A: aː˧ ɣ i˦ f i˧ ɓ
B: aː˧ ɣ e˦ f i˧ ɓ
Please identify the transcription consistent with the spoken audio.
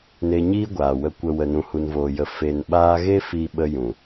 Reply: B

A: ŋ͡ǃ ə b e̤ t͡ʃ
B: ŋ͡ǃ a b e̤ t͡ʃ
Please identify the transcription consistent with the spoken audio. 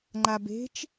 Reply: B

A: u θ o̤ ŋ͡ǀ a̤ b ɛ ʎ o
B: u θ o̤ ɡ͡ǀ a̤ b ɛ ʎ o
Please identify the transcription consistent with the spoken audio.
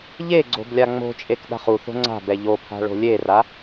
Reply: A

